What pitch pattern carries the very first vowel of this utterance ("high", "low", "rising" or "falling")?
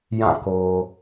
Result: falling